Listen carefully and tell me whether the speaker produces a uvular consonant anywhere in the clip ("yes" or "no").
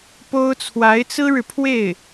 no